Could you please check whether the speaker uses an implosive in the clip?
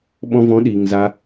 yes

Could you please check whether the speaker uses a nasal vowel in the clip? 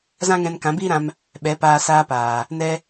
yes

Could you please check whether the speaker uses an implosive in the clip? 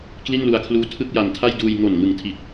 no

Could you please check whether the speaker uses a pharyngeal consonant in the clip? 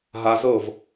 no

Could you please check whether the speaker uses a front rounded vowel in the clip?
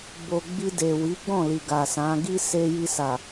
no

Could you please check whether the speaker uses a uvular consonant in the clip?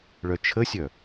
no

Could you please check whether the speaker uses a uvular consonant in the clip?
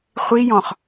yes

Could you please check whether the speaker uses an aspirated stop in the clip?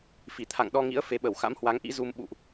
yes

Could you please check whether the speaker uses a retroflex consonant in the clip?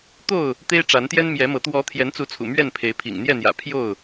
yes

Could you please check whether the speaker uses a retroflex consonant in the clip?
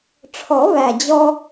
yes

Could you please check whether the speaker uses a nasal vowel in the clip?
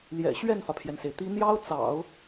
no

